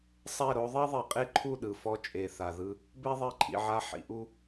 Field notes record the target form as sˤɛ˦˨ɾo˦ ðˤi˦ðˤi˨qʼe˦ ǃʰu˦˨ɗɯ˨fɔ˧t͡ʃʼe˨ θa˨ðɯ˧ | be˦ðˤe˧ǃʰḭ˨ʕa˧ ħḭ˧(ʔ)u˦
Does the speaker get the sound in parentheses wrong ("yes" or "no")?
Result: no